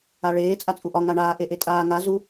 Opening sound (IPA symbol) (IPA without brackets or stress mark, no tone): a